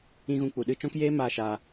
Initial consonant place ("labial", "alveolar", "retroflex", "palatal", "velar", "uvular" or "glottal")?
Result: velar